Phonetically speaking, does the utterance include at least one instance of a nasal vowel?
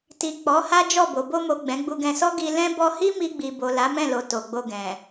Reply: yes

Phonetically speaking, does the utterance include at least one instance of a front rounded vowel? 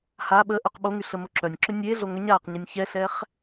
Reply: yes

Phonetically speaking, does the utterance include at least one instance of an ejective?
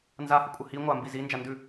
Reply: yes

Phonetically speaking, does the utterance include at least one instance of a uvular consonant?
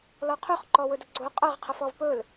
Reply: yes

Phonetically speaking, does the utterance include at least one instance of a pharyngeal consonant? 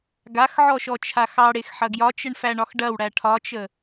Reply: yes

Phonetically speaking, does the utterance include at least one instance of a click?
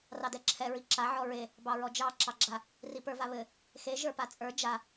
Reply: yes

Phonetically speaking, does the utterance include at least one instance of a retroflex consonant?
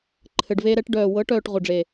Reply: yes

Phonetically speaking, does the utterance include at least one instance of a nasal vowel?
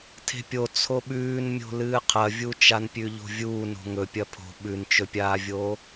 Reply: no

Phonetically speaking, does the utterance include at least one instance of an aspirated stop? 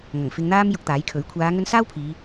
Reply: yes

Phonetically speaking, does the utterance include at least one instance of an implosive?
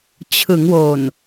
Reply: no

